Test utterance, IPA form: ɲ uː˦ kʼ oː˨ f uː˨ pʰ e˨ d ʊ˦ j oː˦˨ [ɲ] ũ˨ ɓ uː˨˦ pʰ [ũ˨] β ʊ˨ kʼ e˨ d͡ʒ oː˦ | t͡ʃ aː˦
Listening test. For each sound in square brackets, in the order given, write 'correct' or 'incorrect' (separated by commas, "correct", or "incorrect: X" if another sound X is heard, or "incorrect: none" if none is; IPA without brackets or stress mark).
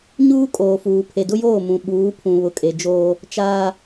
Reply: incorrect: m, correct